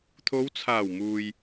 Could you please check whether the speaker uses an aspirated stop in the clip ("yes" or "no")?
yes